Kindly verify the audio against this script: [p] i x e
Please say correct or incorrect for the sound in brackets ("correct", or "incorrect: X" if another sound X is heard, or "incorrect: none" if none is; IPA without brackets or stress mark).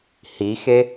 incorrect: h